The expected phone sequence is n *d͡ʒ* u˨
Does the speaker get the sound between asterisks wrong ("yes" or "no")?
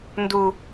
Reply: yes